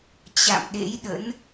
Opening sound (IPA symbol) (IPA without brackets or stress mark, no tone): t͡ɕ